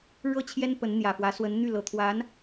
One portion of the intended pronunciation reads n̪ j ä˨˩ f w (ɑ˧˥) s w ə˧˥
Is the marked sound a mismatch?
yes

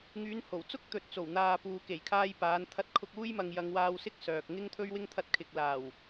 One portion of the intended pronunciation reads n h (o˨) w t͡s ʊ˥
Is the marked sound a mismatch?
yes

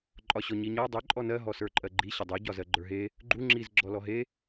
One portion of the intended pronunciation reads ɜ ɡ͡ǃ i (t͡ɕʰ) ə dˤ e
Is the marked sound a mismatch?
yes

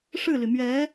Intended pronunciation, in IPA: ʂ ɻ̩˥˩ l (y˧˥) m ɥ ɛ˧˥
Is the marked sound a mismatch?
yes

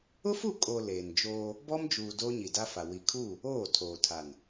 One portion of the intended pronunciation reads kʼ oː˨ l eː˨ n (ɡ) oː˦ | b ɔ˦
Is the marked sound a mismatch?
yes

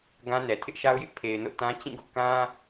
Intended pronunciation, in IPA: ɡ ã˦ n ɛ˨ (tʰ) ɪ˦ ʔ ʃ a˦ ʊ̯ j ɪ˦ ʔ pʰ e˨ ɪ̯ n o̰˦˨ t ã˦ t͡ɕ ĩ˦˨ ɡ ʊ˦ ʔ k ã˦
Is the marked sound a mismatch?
no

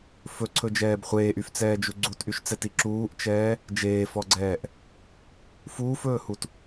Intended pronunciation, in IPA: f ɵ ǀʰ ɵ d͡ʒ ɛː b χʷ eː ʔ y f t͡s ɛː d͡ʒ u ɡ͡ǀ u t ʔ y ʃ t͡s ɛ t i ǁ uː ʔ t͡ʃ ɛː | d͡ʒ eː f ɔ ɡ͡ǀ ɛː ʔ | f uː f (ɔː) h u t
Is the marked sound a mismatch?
yes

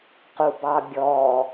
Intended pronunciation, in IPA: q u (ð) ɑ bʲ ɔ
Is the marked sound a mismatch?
yes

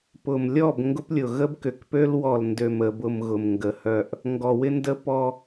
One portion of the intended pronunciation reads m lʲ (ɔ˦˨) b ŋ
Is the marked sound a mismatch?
no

